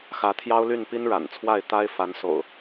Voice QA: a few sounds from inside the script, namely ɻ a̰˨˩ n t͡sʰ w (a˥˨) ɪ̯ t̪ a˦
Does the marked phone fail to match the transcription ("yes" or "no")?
no